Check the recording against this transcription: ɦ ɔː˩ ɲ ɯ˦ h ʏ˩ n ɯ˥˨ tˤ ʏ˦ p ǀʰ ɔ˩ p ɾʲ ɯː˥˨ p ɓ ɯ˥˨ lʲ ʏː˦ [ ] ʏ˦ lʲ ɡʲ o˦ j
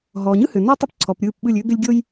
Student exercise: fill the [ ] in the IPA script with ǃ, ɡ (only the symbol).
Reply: ɡ